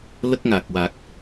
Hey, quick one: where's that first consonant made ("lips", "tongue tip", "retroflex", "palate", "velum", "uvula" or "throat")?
tongue tip